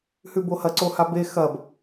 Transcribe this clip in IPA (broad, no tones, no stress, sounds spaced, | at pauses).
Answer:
h ʉ b o h ɐ ǀ o h a b e x ɐ b